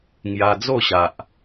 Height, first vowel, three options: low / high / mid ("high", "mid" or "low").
low